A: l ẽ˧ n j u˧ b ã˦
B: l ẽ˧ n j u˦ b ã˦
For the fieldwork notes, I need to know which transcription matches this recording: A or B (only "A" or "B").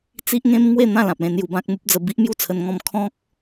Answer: A